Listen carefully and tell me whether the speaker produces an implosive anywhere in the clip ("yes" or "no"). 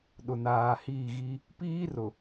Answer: yes